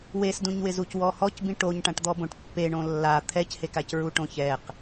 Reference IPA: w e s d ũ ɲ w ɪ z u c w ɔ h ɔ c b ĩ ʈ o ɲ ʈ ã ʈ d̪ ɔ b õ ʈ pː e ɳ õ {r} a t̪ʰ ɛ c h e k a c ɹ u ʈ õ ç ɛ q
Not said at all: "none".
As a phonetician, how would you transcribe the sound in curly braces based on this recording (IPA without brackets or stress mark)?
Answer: lː